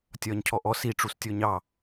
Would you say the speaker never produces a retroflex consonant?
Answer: no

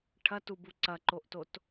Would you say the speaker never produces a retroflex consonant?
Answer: no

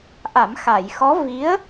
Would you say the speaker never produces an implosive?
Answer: yes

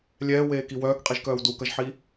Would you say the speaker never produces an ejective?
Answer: no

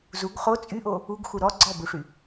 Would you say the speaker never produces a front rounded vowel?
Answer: no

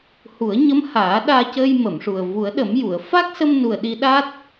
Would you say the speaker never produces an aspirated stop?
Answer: yes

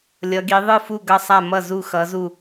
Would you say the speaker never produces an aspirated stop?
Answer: yes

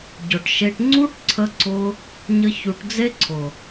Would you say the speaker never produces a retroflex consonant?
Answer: no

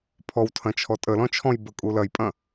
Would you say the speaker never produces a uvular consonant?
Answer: yes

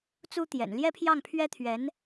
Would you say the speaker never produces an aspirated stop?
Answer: no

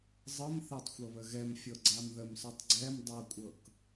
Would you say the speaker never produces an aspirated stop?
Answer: yes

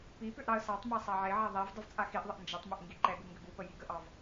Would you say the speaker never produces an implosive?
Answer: yes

